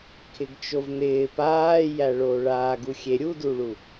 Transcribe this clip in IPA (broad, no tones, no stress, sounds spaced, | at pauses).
kʰ ɪ ɡ t͡ʃ o v n ɪː p aː j æ ɭ oː ɭ aː ɡ u xʲ e ɾʲ u d u ɭ u